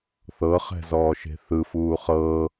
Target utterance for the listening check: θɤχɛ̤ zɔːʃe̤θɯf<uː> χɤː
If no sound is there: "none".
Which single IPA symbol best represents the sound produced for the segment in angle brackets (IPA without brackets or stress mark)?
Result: uː